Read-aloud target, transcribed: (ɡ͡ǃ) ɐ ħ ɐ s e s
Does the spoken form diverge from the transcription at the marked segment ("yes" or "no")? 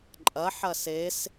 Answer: yes